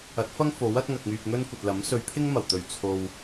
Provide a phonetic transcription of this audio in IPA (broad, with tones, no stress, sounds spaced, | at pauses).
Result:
ɐ˨˥ t̚ f ɐ˥ ŋ f o˨˥ w ɐ˨˥ t̚ ŋ ɐ˨ k̚ ŋ yː˨ p̚ ŋ ɵ˥ n kʷ ɐ˨ t̚ l ɐ˨˥ m s ɵ˨˧ ɥ pʰ ɪ˥ ŋ m ɐ˨˩ w t̪ ɵ˨˩ ɥ t͡sʰ o˨ w